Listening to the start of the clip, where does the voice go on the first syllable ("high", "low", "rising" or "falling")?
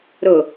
low